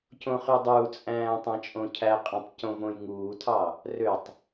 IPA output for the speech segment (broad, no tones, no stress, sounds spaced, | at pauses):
c õ χ y dˤ uː t͡sʼ æ̃ː tˤ æ̃ t͡ʃʼ õ cʰ æ qʼ ẽ tˤ c õ v õ j ŋ uː tʰ ɑ | r ø tˤ